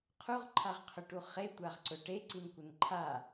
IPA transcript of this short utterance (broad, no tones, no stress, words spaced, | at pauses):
qʰuʁǃʰaʁqʰɵʈu χetʷaʁǀɵ ʈeǀinkʷən ǃʰa